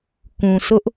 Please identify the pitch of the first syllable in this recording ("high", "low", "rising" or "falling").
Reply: low